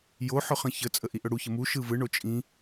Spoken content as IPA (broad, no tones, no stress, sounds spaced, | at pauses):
j o ħ ɵ χ ə̃ ç ə t͡sʼ ə ʔ i ʔ ɵ ɽ u ç ə m u ʃ ɯ v ɯ ɳ o t͡ʃʼ ĩ